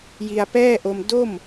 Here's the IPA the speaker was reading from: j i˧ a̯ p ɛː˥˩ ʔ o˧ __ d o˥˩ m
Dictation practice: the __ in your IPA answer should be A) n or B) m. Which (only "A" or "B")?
B